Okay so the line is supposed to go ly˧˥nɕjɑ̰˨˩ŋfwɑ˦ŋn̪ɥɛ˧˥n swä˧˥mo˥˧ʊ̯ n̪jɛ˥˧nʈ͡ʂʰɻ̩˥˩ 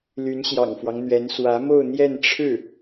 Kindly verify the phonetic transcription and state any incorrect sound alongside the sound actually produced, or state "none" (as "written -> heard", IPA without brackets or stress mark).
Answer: none